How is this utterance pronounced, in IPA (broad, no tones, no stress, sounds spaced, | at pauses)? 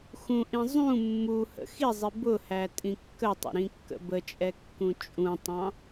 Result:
x ũ ʔ ĩ zˤ ũ mː u h ə̰ x i zˤ i b ʊ h æ tʼ ĩ kː ə tˤ ə̰ ɾ ĩ kː ə̰ b ə t͡ʃʼ ɛ kː ũ t͡ʃʼ ũ tˤ ɑ̃